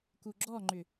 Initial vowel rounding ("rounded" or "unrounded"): rounded